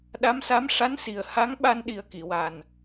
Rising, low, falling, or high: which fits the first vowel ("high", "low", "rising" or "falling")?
rising